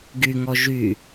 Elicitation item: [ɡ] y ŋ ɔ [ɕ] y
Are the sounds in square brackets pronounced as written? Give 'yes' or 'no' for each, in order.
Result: yes, no

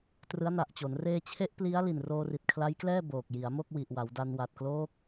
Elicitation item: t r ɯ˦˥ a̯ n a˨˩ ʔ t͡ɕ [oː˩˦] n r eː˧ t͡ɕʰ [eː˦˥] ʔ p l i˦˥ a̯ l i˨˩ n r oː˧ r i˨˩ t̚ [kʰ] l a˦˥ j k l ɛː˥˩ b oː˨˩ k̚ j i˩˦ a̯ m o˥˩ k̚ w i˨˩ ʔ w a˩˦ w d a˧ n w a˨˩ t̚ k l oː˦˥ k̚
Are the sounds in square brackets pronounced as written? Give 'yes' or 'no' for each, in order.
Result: no, no, yes

